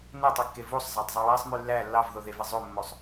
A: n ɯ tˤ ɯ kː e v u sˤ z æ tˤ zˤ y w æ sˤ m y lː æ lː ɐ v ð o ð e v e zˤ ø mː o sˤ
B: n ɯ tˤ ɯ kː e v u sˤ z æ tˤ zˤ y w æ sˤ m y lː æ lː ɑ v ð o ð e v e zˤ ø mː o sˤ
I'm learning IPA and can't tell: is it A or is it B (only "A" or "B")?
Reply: B